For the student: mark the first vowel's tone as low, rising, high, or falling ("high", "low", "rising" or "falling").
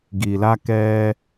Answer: low